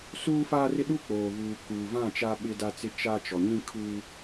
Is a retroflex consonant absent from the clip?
yes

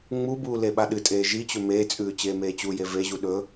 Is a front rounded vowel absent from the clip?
yes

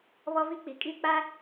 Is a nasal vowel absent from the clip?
yes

